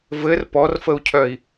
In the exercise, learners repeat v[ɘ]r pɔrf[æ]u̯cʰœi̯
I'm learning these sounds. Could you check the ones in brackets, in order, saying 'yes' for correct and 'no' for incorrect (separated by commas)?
yes, no